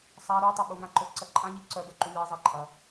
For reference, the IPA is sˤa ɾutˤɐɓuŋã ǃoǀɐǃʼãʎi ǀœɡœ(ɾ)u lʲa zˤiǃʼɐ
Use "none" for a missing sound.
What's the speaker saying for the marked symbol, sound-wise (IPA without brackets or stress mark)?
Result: ǃ